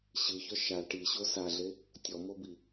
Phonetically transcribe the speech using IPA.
ɕɯçɔ ʃa ʈiɕo saɮe | tʲɔmobi

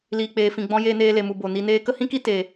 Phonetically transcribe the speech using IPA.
liː˨k͡peː˨fĩ˨ɡ͡bɔ̃˧ jeː˧neː˧le˨mu˨ bo˨ ni˧neː˦ kə˦hĩ˦ki˦ teː˨

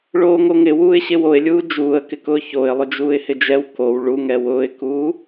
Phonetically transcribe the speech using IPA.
ɭoːŋoŋɪ wuːɪ̯ɕɪwoɪ̯lʲuː d͡ʒuːə̯kɪkʊː çoɪ̯ lˠʊd͡ʒuːɪ̯hɪd͡ʒɛw kow ɭuŋɛ wʊːɪ̯kuː

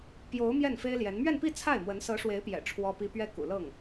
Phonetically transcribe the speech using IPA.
pjo˧˥ʊ̯ mjɛ˥˩nfe˥ɪ̯ljɛ˧˥n mɥɛ˥˧npi˥˧ t͡sʰa˥˩ɪ̯mwə˧˥n sɤ˧˥ʂwe˧˥ɪ̯pjɛ̰˨˩ ʈ͡ʂʰwɔ˥pi˥ pɥɛ˥kṵ˨˩lɤ˥˩ŋ

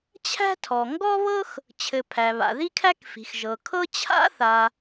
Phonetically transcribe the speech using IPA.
t͡ɕʰæ̤˥tʰɔ˩ ŋɡɔ˥βɤ˥x | t͡ɕʰɘ˩ pʰæ˩βa̰˩ ði˥kʰæ˥k fi̤˩x ʒɤ˩ kʰɤ˥ t͡ɕʰa̰˥ θa˩

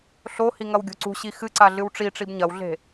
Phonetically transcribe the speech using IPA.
ɬohi ŋɐwɡʲo̤ǀṳɕi xɨǀa ɮɨwʈ͡ʂiʈ͡ʂib ɲɐwɮe̤

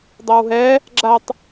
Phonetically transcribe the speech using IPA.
dˤɜwɦɛ | ɡ͡ǁatˤ

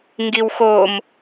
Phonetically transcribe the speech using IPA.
ŋɡiwxom

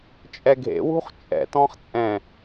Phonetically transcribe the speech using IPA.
t͡ʃʼɛɡʱḛwṳχ t͡ʃʼɛ̰tɔ̃χ t͡sʼɛ̃

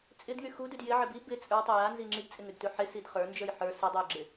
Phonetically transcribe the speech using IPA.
t͡sʼɪdŋy xudʉd jɪʕɪ bi bɪ t͡sʼə˞tˤɪ janzi ŋ͡ǁidt͡sʼɪŋʉdtʉ ħɪsid χə˞nd͡ʒə˞j ħə˞ sɪdˤʉjɡ͡ǁɪ

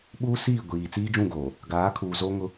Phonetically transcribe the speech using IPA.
ɓuː˦siː˦˨ ɡʷiː˨ t͡siː˦d͡ʒũ˦˨ɡoː˨ | ɡaː˨˦kʰuː˨ zo˦ŋʊ˦

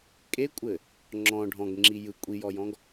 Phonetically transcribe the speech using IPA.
kʼekʷʼɘ | ŋ͡ǁɔ̃ ɖʱɔ̃ɡŋ͡ǁi jɯ kʷʼijɔjɔ̃ɡ

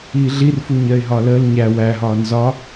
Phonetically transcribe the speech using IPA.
iːɮirfuɲɜɪ̯ ɦɒləːl ɲæ wæɦɒː nzɒ

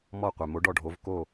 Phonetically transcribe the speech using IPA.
mɔ˥˩qʷɛ˩ mo˩˥ɖɔ˥˩ɖʱo˩˥v ko˥˩

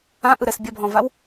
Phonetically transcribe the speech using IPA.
ãʔɯɾɛs bʲɐbʱɔ̃vaw

